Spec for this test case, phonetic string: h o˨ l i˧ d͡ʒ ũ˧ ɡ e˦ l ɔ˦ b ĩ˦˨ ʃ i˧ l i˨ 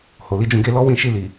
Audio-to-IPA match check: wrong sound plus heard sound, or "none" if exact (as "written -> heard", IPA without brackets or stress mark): b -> w